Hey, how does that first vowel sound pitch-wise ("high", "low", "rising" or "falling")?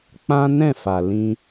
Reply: high